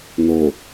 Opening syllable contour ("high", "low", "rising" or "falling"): low